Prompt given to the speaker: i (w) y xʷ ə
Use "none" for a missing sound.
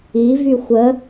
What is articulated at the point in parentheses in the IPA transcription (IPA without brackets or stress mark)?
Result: v